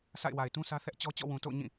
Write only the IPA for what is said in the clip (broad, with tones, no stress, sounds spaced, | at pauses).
sʰ a̰˦˨ ɪ̯ w a˨ ɪ̯ t ũ˦ sʰ ä˦ θ ɛ˦ ʔ t͡ɕ ɔ˦ t͡ɕ ɔ̰˦˨ w ũ˨ t o̰˦˨ ʊ̯ ɲ ĩ˦˨